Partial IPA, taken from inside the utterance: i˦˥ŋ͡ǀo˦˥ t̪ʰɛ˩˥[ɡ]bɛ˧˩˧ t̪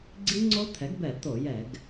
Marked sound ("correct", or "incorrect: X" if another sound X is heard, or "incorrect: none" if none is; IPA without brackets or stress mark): correct